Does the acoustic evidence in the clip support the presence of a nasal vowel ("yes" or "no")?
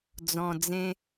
yes